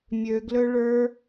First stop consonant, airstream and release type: plain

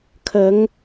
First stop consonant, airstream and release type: aspirated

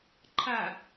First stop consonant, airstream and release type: click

